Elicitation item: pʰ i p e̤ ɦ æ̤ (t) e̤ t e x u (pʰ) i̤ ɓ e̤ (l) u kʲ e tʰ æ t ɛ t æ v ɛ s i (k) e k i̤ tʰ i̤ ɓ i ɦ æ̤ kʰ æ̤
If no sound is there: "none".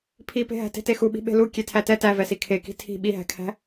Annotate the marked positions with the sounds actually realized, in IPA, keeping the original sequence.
t, ɓ, l, kʰ

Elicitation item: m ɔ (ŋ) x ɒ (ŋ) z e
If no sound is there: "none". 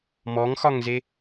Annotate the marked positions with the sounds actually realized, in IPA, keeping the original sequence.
ŋ, ŋ

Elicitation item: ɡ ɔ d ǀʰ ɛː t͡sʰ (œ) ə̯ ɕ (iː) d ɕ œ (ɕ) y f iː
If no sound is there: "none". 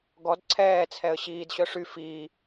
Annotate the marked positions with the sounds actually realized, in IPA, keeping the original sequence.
ɛ, iː, ʂ

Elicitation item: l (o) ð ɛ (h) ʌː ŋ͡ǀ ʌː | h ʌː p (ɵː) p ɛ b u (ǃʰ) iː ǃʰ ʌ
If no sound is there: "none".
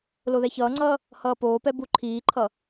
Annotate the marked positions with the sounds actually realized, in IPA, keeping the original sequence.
o, ç, oː, ǃʰ

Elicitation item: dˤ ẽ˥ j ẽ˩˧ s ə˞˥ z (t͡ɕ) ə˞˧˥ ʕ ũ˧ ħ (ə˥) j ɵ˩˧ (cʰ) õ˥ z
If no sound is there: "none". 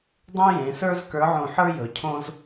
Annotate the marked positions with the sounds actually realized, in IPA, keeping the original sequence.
k, ə˞˥, cʰ

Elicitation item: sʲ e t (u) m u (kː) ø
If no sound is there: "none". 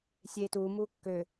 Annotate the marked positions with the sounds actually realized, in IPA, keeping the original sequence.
u, kː

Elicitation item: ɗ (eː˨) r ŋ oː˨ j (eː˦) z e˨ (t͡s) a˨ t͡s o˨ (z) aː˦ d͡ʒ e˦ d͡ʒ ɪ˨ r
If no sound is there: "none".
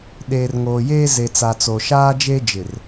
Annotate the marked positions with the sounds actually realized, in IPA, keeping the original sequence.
eː˨, eː˦, t͡s, ʃ

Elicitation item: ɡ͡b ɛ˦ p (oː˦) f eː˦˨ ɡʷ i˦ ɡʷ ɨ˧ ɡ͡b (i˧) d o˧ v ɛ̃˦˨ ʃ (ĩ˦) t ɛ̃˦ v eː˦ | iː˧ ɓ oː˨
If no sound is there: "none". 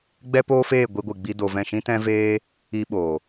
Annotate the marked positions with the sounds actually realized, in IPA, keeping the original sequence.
oː˦, i˧, ĩ˦

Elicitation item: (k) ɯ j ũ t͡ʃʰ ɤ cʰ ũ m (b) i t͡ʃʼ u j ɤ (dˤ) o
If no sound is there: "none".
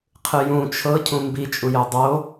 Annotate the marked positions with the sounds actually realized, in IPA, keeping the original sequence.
qʰ, b, dˤ

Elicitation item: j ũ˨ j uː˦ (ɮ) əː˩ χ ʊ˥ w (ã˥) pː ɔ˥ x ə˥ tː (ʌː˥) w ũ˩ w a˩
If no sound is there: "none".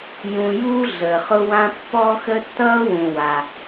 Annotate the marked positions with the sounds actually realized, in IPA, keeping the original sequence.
ɮ, ã˥, ʌː˥

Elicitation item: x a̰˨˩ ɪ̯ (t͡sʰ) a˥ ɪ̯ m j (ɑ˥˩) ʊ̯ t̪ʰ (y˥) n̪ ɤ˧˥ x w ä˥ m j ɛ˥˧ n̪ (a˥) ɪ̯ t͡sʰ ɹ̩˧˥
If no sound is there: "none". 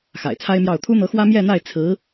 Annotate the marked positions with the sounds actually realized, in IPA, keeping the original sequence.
t͡sʰ, ɑ˥˩, u˥, a˥˩

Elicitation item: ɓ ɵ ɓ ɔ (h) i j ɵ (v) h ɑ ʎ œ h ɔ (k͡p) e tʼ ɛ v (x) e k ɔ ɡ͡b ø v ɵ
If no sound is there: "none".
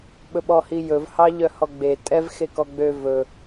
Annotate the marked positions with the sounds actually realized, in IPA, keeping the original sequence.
h, v, ɡ͡b, x

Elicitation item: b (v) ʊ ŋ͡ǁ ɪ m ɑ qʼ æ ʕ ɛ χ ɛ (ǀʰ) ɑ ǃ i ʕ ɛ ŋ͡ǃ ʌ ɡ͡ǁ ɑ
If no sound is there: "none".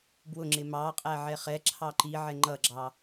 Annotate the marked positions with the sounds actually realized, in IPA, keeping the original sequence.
w, ǁʰ

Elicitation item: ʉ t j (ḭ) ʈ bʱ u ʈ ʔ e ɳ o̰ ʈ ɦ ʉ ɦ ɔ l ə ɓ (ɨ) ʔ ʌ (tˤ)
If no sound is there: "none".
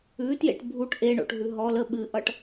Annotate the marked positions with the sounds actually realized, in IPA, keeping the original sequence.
ḛ, ɨ, ʈ

